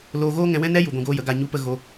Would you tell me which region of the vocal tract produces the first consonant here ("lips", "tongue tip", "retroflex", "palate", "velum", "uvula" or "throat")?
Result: tongue tip